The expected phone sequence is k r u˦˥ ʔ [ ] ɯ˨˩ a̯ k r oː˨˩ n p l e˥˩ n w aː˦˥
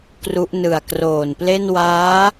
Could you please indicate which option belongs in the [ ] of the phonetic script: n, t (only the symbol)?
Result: n